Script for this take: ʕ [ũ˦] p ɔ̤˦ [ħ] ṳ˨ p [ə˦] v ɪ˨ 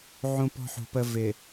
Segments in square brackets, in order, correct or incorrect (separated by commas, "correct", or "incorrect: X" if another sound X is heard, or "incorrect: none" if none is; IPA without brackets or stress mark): correct, correct, correct